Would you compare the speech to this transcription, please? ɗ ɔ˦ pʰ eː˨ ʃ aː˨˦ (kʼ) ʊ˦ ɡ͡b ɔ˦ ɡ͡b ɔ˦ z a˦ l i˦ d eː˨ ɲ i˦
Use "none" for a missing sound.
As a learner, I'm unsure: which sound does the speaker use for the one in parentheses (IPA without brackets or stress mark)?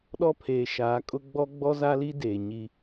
kʼ